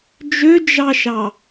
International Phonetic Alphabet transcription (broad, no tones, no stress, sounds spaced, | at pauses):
d͡ʒ ø d͡ʒ ɑ ʃ ɑ